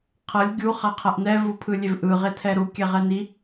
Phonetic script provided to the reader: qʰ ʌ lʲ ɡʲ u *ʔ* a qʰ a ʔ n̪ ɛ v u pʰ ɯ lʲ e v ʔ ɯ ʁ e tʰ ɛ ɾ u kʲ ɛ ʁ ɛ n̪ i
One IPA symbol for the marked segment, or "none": χ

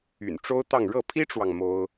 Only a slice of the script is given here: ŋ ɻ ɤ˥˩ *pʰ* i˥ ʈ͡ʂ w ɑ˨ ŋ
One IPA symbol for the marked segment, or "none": pʰ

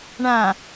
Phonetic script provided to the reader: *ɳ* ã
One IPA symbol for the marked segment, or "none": ɳ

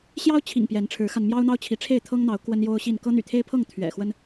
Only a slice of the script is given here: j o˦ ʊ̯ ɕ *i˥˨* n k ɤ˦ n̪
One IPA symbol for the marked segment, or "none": i˥˨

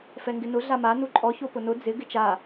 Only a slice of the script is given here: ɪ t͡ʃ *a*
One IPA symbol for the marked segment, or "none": a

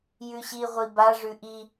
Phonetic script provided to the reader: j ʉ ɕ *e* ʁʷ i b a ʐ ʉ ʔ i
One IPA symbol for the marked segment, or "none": i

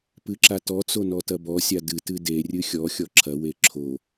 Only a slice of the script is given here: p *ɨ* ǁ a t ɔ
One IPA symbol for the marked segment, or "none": ɨ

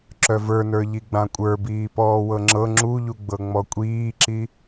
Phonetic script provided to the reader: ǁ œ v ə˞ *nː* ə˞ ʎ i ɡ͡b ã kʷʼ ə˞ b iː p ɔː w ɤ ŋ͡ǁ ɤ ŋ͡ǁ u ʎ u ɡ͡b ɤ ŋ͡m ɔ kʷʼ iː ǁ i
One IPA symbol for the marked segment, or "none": n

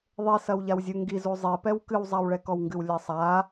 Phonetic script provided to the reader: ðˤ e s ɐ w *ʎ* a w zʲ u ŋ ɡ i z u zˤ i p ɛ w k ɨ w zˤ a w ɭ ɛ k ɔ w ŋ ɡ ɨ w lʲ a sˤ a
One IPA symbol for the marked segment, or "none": ʎ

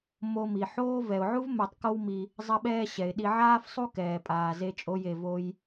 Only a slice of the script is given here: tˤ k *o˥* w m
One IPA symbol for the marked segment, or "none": o˥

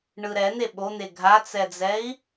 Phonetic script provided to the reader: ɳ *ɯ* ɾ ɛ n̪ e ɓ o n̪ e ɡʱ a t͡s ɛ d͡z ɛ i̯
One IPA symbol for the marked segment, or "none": ɯ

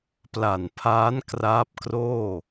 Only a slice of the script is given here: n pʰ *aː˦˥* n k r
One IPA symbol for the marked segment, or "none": aː˦˥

